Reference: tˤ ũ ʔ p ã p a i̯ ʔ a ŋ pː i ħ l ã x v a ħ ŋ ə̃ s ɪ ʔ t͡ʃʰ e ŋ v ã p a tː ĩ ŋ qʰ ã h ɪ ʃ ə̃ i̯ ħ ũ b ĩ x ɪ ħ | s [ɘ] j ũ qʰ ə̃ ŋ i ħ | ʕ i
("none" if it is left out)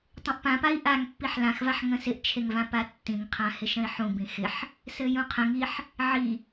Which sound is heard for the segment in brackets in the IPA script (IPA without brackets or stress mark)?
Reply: ɘ